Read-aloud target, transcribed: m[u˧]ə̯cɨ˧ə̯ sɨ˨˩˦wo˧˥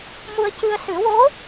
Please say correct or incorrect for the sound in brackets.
correct